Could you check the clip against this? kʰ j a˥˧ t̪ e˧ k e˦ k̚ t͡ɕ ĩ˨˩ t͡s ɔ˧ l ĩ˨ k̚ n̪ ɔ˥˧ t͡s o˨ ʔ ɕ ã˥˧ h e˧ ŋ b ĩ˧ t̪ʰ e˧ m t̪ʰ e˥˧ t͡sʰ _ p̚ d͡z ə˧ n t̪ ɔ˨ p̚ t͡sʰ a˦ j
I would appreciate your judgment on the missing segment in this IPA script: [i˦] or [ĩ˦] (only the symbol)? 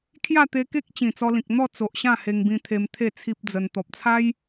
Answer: i˦